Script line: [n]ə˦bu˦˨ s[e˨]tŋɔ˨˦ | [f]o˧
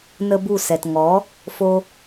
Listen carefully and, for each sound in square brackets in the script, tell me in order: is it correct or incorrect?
correct, incorrect: ɛ˨, correct

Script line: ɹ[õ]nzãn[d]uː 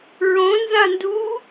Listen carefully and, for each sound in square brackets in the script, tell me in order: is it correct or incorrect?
correct, correct

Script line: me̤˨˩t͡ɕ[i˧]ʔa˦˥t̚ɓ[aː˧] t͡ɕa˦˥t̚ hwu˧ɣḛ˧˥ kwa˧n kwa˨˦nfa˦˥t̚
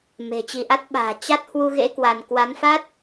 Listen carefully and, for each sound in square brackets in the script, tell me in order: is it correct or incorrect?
correct, incorrect: a̤ː˨˩

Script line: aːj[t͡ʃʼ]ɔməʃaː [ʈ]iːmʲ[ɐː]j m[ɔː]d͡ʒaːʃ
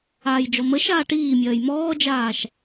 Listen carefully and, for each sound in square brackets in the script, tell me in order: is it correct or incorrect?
incorrect: d͡ʒ, correct, correct, correct

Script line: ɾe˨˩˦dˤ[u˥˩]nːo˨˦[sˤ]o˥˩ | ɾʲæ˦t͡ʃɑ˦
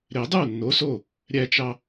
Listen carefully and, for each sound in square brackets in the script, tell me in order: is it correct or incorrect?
correct, incorrect: s

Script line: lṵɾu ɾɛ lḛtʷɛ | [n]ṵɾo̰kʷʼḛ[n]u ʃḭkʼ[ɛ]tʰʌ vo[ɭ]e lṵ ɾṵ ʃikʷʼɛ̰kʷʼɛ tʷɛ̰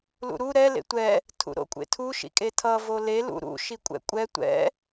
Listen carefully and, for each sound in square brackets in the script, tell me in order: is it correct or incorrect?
incorrect: tʰ, incorrect: tʰ, incorrect: e, incorrect: l

